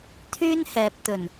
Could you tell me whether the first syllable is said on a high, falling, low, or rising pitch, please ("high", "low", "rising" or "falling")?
high